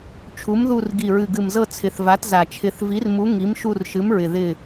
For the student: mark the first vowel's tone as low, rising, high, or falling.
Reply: rising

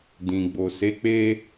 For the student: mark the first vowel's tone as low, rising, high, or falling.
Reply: low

